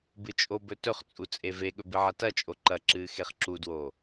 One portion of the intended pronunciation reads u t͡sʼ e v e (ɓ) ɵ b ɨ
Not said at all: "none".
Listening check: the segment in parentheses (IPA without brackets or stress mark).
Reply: ɠ